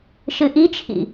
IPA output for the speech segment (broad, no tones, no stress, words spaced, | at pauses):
ʃɨʔit͡ʃʰḭ